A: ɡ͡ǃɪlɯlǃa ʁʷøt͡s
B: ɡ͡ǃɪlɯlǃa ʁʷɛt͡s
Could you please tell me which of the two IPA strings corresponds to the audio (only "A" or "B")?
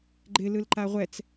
B